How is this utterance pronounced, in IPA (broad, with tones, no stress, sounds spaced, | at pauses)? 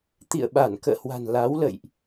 t̪ ḭ˧˨ ə̯ ɓ a˧˩ n k ə̰ː˧˨ h w a̤˨˩ n l a˨˦ w l ə̰˧˨ j ʔ